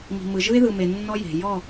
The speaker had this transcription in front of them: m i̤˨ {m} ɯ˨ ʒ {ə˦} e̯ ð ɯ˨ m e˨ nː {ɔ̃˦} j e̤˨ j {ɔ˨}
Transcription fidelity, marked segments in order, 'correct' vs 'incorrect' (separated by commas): correct, incorrect, incorrect, incorrect